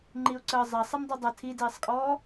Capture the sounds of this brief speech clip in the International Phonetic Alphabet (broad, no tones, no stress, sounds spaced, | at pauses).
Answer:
ŋ͡ǃ i ʊ̯ ǀ əː zˤ ɐ sˤ ɛ m dˤ i dˤ ɐ tʰ i d iː sˤ kʼ ɔː